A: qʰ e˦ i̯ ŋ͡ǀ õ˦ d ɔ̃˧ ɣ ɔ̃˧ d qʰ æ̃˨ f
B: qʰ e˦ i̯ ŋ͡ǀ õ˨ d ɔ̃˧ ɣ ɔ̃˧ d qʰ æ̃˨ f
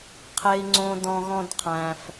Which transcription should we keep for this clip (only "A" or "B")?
A